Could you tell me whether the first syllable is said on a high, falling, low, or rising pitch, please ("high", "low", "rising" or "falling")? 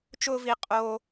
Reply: high